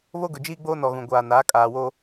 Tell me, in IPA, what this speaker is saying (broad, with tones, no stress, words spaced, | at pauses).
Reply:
βo˦ɡʊ˨d͡ʒiː˦ɡ͡boː˦ nɔ˨ɣũ˨ɡʷaː˨naː˨˦ kʼaː˨wo˦